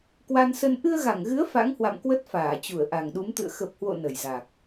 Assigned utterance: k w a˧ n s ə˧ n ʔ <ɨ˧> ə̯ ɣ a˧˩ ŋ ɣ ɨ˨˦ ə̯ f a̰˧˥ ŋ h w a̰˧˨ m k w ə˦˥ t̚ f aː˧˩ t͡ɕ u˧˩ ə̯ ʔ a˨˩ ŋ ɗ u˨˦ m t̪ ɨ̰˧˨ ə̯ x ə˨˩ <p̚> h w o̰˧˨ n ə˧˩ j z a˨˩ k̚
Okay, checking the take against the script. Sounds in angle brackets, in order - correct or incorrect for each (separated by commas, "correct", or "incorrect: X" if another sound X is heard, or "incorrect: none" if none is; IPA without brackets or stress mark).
correct, correct